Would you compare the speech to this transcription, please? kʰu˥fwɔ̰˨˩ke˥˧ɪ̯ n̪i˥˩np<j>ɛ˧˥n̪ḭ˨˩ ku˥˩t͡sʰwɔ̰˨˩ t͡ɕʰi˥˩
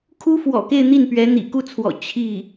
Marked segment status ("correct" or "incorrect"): incorrect